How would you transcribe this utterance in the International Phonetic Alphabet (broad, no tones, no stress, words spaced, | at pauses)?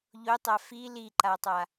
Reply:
ʎotˤa fi liǃatˤa